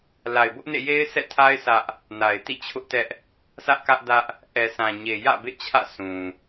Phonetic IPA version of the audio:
la˨ɪ̯bʊ˦ʔnḛ˦˨ je˦ɪ̯sʰɛ̰˦˨tʰa˦ɪ̯ sʰä˦ʔ | na˨ɪ̯tḭ˦˨t͡ɕʰʊ˦ʔtɛ˦ʔ | sä˦ʔkä˦ʔdä˦ʔ | ʔɛ˨sʰã˨ɲe˨ jä̰˦˨bḛ˦˨t͡ɕʰä̰˦˨sʰũ˨

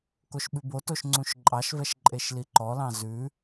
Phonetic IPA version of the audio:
koʃɓʉbotoʃ ŋ͡ǀũʃǃʼɑʃvɛʃ ǃʼeʃliǃɔlɑ̃ zʉ

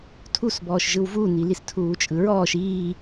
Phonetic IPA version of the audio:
tʰusbɔːʃ ʒɯwvunilis tʰuːt͡ʃʼɯɹɔːʃ iː

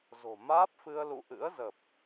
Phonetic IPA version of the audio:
zo̤˨˩ maː˦˥p̚fɨ˧ə̯ lṵ˧˨ʔɨ̰˧˥ə̯zə˨˩p̚

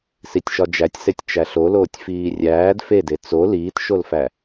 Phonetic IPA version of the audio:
sitʲʃɒd͡ʒætʲsetʲ t͡ʃæɬoloːtʲ fiːrʲæːd fede t͡so liːtʃolfæ

